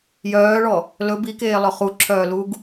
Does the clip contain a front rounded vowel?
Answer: yes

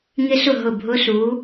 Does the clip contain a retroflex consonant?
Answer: no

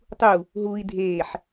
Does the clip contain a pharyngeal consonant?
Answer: yes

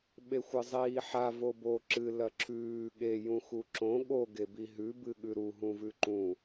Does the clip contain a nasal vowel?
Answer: yes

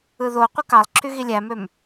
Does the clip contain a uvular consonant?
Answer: yes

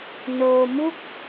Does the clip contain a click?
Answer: no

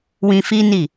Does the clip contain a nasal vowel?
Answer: yes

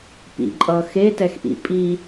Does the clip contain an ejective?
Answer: yes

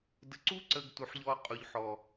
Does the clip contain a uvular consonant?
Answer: yes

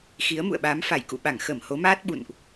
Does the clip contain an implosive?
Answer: yes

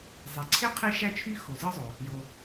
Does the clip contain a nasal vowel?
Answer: no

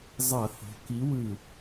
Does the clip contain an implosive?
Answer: no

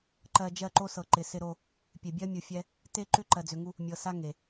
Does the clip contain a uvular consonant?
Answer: no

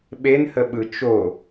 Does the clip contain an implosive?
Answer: yes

